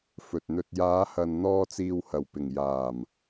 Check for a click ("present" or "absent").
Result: absent